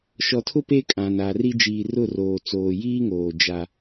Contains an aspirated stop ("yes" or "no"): yes